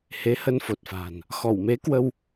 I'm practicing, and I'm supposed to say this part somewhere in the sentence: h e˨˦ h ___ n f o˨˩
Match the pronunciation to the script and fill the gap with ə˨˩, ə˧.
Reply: ə˧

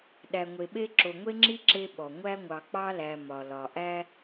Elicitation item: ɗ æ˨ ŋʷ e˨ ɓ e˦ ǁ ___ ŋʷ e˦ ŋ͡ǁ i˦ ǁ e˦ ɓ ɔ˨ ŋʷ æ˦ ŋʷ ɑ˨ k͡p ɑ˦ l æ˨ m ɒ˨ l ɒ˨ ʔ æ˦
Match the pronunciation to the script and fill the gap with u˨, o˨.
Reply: o˨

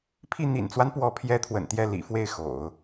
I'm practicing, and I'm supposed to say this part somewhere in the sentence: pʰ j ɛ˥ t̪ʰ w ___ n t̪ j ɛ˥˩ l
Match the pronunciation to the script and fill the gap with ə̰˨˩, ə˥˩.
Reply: ə̰˨˩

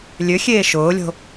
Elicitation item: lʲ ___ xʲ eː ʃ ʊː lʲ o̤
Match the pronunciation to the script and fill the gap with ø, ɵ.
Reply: ø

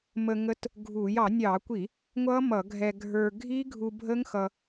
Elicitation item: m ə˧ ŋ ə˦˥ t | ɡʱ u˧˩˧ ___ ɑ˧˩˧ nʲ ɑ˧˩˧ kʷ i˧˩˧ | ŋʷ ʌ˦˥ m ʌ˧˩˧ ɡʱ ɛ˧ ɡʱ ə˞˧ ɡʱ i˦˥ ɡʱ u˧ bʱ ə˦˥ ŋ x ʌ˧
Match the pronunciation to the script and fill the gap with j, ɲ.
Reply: j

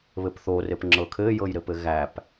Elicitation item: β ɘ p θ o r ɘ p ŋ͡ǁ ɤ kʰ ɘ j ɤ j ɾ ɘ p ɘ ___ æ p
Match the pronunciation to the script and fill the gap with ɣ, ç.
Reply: ɣ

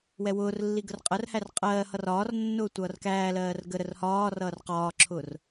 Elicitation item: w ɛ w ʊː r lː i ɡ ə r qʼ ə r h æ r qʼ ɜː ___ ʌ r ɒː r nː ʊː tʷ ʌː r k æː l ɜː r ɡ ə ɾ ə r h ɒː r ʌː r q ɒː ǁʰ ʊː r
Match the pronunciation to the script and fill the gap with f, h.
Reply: h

